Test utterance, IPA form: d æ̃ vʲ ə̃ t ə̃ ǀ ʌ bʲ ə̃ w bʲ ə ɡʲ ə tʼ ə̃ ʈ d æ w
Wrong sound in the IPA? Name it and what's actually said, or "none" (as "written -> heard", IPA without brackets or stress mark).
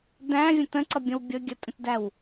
ʈ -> t